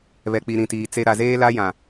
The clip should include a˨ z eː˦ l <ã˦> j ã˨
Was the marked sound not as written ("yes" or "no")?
yes